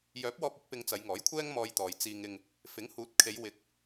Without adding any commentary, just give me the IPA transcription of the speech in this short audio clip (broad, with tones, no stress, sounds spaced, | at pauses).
j œː˨˥ p̚ w ɔː˧ p̚ ɵ˨˥ t̚ p ɪ˧ ŋ t͡s ɐ˨˧ j ŋ ɔː˨˥ j kʷʰ ɛː˥ ŋ m ɔː˧ j t̪ ɔː˨ j t͡s iː˧ ŋ ɪ˧ ŋ | f ɪ˨˥ ŋ h uː˨˥ t̚ kʰ e˨˧ j w ɪ˨˥ k̚